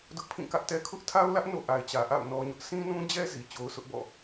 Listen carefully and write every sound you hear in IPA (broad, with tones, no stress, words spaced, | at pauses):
dʊ˦ʔpʰĩ˦˨kä˦ʔtɛ˦ kʰʊ˦ʔtʰa˦ʊ̯lä˦ʔ no̰˦˨ʔa˨ɪ̯t͡ɕä˨ ʔa̰˦˨ʊ̯ nɔ˦ɲʊ˦ʔ sʰĩ˦nũ˦d͡ʑɛ˦ zi˨t͡ɕo˦ʊ̯ sʊ˦ʔbɔ̰˦˨